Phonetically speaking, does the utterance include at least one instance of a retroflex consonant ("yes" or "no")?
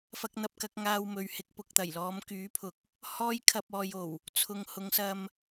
no